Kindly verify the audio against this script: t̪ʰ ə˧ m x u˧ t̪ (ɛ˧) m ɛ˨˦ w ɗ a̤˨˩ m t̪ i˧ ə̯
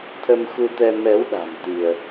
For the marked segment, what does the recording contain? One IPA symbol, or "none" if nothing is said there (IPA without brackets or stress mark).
ɛ˧